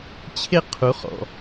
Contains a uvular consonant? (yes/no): yes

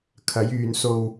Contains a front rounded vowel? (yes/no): yes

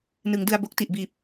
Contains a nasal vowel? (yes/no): no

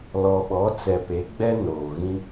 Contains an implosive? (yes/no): yes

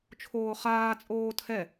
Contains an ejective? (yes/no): yes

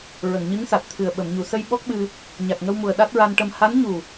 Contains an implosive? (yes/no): yes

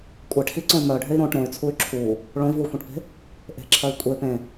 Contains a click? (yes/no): yes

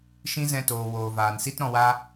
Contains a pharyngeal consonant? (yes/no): no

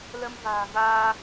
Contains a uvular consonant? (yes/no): no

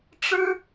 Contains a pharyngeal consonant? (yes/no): no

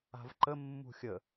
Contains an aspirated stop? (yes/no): no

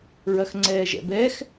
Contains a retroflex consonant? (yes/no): no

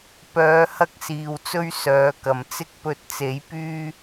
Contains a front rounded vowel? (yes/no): yes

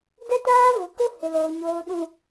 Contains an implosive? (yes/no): yes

